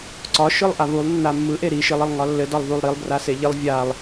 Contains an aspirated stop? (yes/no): no